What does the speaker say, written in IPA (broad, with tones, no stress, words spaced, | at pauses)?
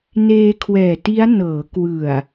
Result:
neː˧kʰwɛː˨˩ti˦˥a̯ nɤː˩˦ kwɯ˨˩a̯